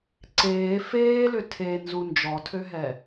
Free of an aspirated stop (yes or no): no